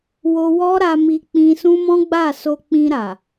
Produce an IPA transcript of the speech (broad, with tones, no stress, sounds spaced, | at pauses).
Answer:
w o˧ w ɔ˦ ɾ a˧ m i˧ k͡p ĩ˧ s ũ˦ m ɔ̃˦ ɡ͡b a˦˨ s o˧ k͡p ĩ˧ ɾ a˨